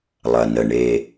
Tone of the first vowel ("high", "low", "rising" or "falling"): low